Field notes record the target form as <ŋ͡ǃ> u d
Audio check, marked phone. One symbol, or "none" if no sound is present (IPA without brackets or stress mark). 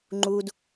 ŋ͡ǃ